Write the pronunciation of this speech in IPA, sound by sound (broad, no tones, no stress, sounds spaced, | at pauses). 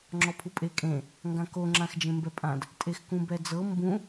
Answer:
ŋ͡ǁ ɔ pʰ u pʼ e kʼ ẽ | ŋ ɡ ã k o ŋ͡ǁ ã x d͡ʒ ẽ m b ɛ pʼ ã d | tʼ e x k ũ b ɛ d͡z ɤ m b ũ